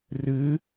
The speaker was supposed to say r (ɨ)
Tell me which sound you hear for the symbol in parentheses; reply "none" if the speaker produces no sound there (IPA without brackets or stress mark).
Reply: ɨ